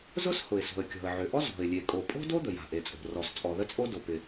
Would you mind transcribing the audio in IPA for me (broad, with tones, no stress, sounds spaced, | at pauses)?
z ʊ˥ s h ʊ˩ ɪ̯ s o̤˩ ə̯ kʲ ɔ̤˩ ə̯ ʕ ø˩ ʔ ɔ˥ z ɔ̤˩ ɪ̯ lʲ e˩ kʼ o˩ pʼ o̤˥ d o˥ d̪ ə˩ j a̤˩ ʔ e˩ t͡sʼ o̤˩ r ɔ˩ s t͡sʼ ɔ˩ ð ə˥ t͡sʼ o˥ d o˩ p ɪ˩